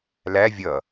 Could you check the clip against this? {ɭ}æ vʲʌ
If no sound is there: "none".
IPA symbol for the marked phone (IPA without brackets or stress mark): l